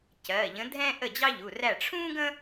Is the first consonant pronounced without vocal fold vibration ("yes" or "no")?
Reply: yes